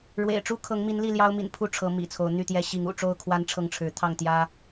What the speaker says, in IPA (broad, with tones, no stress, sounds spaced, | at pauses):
ɻ w ḛ˨˩ ɪ̯ ʈ͡ʂ u˦ kʰ ɤ˨˦ ŋ m i˨˦ n l i˥˨ l j ɑ˦ ʊ̯ m ḭ˨˩ n pʰ u˥˨ ʈ͡ʂʰ ɤ˨˦ m ḭ˨˩ t͡sʰ o˨˦ ʊ̯ n̪ y˥˨ t̪ j ɛ˦ ɕ i˨˦ ŋ ṵ˨˩ ʈ͡ʂ o˥˨ ʊ̯ kʰ w a˦ n ʈ͡ʂʰ ɤ˥˨ ŋ ʈ͡ʂʰ ɻ̩˨˦ t̪ʰ ɑ˥˨ ŋ t̪ j ä˦